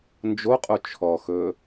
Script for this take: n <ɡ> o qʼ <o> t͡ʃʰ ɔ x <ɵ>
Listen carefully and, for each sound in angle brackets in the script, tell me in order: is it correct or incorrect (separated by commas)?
incorrect, correct, correct